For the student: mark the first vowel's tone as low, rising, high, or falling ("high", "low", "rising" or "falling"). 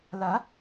rising